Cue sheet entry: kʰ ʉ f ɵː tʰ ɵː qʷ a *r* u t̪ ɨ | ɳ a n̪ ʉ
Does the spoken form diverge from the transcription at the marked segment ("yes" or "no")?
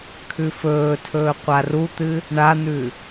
no